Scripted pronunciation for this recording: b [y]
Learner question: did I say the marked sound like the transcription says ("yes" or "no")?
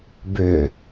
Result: no